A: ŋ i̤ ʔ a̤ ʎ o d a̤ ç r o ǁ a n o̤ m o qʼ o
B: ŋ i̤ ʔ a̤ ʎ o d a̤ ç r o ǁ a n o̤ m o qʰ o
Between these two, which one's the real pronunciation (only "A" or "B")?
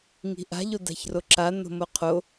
B